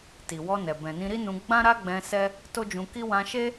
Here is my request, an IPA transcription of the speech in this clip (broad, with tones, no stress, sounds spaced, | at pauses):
t i˨ w ɔ˧ n ɛ˨ b ɛ̃˨ n ĩ˧ ɾ i˦ n ũ˧ ɡ͡b ã˦ ɾ a˦ ɡ͡b ɛ̃˧ s ɛ˦ | t o˦ d͡ʒ ũ˧ k i˦ w ã˧ ʃ e˦